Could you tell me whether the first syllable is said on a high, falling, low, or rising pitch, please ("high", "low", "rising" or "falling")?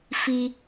high